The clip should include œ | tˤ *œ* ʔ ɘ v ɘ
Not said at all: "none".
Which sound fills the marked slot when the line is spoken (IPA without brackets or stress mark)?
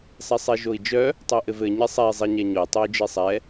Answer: œ